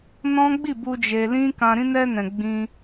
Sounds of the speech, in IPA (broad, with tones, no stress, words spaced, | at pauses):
nɔ̃˦ɡ͡bi˦˨bu˧ d͡ʒe˧lĩ˦ kã˧ ɾĩ˧nɛ˧nɛ̃˨ ɡ͡bĩ˧